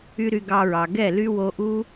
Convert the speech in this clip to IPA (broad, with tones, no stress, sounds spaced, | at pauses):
y˦ ɾ y˧ ɡ ɑ˧ ɹ ɑ˨ ɡ ɛ˦˨ l y˦ w o˧ ʔ u˦